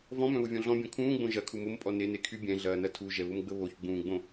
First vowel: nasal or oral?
nasal